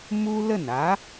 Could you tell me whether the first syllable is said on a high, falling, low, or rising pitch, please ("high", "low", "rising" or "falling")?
high